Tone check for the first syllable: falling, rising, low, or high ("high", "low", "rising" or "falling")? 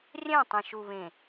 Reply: falling